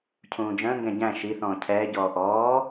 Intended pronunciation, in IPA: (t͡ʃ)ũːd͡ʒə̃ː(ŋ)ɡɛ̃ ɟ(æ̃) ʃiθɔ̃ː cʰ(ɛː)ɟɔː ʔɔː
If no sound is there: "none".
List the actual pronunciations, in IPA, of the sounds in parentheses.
cʰ, ŋ, æ̃, ɛː

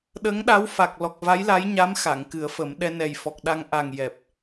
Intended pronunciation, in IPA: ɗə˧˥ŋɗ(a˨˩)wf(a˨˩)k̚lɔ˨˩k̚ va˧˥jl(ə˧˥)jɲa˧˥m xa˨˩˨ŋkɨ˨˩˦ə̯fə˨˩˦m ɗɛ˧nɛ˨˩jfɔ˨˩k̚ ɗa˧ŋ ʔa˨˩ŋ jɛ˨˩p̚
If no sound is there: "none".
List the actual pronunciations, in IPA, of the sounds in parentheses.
a˧˥, a˨˩, a˧˥

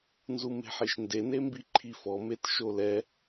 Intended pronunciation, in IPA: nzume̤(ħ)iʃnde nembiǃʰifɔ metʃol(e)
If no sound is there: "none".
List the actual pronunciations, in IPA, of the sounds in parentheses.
ħ, ɛ

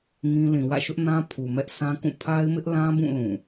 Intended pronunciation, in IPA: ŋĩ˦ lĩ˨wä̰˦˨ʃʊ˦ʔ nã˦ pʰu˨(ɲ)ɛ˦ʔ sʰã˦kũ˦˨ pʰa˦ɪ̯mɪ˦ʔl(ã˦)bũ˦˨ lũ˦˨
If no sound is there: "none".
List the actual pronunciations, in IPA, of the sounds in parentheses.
m, ã˦

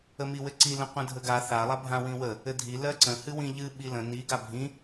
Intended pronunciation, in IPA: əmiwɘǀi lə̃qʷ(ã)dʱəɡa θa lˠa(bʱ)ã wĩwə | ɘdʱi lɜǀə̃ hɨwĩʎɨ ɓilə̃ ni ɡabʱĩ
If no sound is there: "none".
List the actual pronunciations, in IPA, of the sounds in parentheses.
ə̃, bʱ

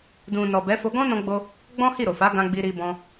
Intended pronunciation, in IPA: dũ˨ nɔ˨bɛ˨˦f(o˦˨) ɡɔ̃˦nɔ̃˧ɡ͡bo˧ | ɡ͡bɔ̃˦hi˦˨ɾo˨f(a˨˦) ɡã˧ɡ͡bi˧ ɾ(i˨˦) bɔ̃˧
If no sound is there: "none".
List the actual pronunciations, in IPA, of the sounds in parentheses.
o˧, a˨˦, i˧

